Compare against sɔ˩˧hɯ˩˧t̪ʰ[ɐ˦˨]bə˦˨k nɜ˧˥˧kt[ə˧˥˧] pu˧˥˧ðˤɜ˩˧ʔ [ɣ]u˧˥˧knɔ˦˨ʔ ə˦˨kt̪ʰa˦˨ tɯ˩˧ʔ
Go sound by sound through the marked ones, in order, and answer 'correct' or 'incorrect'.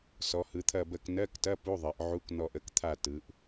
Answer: correct, incorrect: ɐ˧˥˧, incorrect: ʕ

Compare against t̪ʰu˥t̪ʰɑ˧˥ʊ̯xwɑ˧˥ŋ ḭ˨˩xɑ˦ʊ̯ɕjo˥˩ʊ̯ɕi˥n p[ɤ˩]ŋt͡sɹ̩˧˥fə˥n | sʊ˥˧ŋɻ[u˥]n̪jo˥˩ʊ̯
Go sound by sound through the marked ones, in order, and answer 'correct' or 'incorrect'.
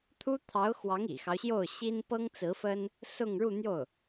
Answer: incorrect: ɤ˥, incorrect: u˥˧

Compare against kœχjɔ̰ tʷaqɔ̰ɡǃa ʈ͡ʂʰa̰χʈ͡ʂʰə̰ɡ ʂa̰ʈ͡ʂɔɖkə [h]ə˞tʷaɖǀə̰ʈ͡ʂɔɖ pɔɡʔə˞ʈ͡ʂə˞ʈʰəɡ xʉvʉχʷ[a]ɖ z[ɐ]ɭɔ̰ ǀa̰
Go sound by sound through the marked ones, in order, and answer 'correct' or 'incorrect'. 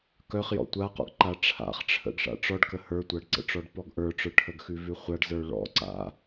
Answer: correct, correct, incorrect: ə˞

